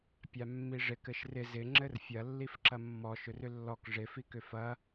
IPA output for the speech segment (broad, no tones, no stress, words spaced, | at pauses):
pʲamːiʐɪk ɘʃrɪ zɪ ŋ͡ǁɘrfʲɐ lːifǁɐmːɔ ʃʏrʏlːɔk ʐɪ fikʏfɐ